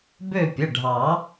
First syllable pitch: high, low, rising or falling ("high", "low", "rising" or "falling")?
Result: falling